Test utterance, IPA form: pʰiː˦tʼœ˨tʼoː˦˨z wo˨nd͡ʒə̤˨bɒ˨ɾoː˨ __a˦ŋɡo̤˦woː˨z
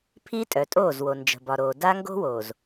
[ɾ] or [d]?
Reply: d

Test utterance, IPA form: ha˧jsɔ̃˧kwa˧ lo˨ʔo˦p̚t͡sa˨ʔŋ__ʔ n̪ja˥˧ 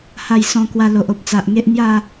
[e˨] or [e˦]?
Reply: e˦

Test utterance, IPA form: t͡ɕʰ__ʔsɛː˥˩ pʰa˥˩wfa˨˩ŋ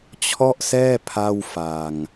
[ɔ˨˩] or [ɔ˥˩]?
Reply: ɔ˥˩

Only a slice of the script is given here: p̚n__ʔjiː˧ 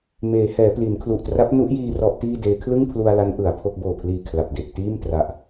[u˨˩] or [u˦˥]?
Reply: u˦˥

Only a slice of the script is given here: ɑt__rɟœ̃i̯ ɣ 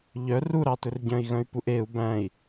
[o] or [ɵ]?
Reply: ɵ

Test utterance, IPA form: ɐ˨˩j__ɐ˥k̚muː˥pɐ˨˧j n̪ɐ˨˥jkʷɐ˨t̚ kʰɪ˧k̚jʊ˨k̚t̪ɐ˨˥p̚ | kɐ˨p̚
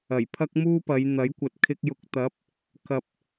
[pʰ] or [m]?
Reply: pʰ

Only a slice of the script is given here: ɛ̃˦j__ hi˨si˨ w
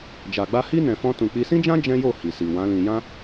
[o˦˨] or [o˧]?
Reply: o˦˨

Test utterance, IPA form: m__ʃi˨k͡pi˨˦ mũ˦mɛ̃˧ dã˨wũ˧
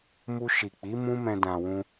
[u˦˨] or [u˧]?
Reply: u˧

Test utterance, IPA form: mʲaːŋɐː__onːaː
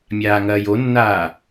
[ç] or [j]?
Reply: j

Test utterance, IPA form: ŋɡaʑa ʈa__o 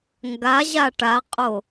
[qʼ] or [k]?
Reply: qʼ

